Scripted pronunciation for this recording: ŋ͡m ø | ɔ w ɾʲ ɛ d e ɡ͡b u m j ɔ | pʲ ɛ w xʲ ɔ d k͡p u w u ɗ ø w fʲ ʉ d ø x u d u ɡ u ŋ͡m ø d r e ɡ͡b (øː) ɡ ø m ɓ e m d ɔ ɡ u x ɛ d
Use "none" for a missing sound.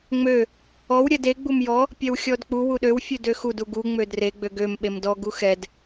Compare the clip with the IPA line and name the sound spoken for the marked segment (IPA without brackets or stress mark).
ø